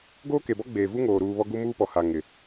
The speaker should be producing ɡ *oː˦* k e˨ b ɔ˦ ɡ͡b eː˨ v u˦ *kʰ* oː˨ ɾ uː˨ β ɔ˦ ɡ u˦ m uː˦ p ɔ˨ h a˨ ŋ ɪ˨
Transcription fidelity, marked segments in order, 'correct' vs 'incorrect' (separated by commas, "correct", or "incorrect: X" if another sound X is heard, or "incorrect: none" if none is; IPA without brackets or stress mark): correct, incorrect: ŋ